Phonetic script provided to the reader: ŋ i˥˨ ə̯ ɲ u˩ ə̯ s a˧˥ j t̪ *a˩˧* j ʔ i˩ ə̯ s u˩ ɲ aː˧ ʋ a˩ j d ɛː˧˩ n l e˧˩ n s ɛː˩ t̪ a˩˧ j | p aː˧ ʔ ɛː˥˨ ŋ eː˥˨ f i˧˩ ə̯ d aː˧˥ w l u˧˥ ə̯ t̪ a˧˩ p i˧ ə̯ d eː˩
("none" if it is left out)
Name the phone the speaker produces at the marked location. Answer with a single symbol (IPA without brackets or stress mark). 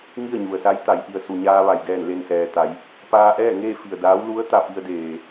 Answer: a˩˧